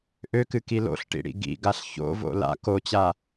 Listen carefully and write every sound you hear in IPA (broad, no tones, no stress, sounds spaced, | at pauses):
ʔ ø k ɨ k i l o̰ ɬ ʈ ḭ ɽ ḭ ɡ ḭ ɡ a ɬ ç o̰ v o̰ l a̰ k o t͡ɕ a